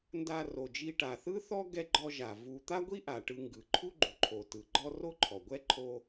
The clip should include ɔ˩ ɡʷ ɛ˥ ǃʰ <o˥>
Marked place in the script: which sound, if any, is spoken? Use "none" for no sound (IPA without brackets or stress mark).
o˥